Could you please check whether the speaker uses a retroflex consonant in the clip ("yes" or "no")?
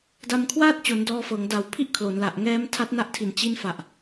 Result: no